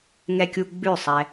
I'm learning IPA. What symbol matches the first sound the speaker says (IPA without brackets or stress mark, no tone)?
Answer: ŋ